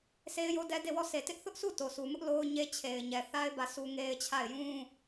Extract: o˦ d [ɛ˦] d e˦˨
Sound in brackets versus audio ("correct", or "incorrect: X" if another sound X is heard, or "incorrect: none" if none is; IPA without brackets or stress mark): correct